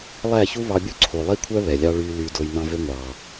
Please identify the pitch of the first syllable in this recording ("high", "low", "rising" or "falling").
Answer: falling